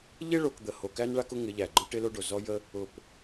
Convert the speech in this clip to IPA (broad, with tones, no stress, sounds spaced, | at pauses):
ʎ ɪ˦ ɭ o˨ k d̪ ə˨ h o˨ k æ˦ n ɭ a˦ k ʊ˦ ŋ ɪ˨˦ ʎ æ˨ ɡ͡ǃ ʊ˦ ʈ ɪ˦ l o˦ ɖ o˨ z ɔ˦ j ə˦ | ʊ˨ p